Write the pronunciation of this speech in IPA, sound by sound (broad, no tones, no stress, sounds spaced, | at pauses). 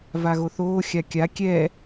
v a ɣ o θ oː xʲ a kʲ a kʲ ɛ